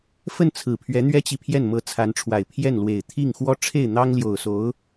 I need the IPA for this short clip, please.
f ə˥˩ n t͡sʰ ɹ̩˨˩ pʰ ɥ ɛ˧˥ n̪ ɥ ɛ˥ t͡ɕ i˨ pʰ j ɛ˥˩ n m ɤ˧˥ t͡sʰ a˧˥ n ʈ͡ʂʰ w a˨˩ ɪ̯ pʰ j ɛ˥˩ n l w e˨˩ ɪ̯ t̪ʰ i˥˩ ŋ x w ɔ˥ ʈ͡ʂʰ e˥˩ ɪ̯ n̪ ɑ˥ ŋ l j o˨˩ ʊ̯ s o˧˥ ʊ̯

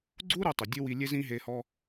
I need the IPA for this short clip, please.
ɡ͡ǀ u˦ ɾ u˧ tˤ ɵ˨ dʲ ɵ˦ w i˧ lʲ e˦ z ĩ˦ ɦ e˧ h ɔ˧

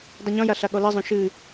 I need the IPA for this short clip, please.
dˤ ɨ ɲ ɔ̃ j a ɬ a ɠ ɔ l i zˤ õ ʃ ɨ

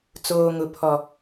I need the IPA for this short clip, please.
t͡s oː˨ ŋ ʊ˨ pʰ ɔ˨

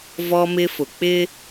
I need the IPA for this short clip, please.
v ɔ˦ m ɪ˦ f ʊ˨ k͡p ɪ˦

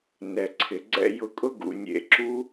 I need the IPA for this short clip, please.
n ɛ˨ ǀʰ ɪ˨ ɡ͡ǀ ɛ̰˦ j ʊ˧ kʼ ʊ˦ ɡ ṵ˨ nʲ ḛ˧ ǁ u˦

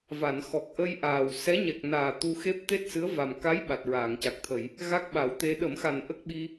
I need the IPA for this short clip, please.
v a˨˩˨ n x ɔ˨˩ k̚ ʔ ə˧ j ʔ aː˨˩ w s ɛ˧˥ ɲ ɛ˨˩ k̚ n aː˨˩ t̪ u˧ x e˦˥ p̚ t̪ e˦˥ t̚ s ɨ˧˥ ə̯ v a˨˩ m k a˧˥ j ɓ a˨˩ t̚ ɹ aː˨˩˨ ŋ c a˨˩ k̚ t̪ʰ ə˨˩˨ j | ɣ a˦˥ k̚ ɓ a˨˩˦ w t̪ e˧ ɗ ə˨˩˦ m x a˨˩ n ʔ ə˦˥ k̚ ɓ i˧

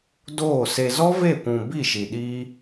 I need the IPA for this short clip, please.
d oː˦˨ s e˧ z ɔ˦ v e˦˨ kʷ ũ˨ b i˦˨ ʃ i˨ ɗ iː˦

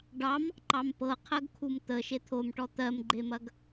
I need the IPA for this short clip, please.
ɖ ɑ m | ǃ ɑ m p ɤ qʰ ɜ ɡ kʰ u m t̪ ə ʃ e t̪ʰ o m ʈ ɔ t̪ ɜ m ɡ͡ǃ e m ɐ ɡ

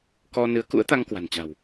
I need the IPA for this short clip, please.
k ɔ˧ n ɨ˨˦ ə̯ k ṵ˧˥ ə̯ t̪ a˧ ŋ k w a̤˨˩ n t͡ɕ a̤˨˩ w

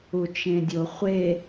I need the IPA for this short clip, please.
u t͡ʃ ẽ dʲ o χʷ e

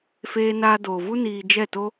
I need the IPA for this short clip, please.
f eː˦ n aː˦ d oː˧ v u˦ n iː˧ d͡ʒ ɛ˦˨ t o˦

